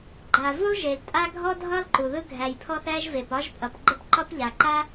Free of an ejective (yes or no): no